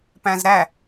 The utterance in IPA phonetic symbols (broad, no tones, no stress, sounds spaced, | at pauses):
p æ̃ z ɾ æ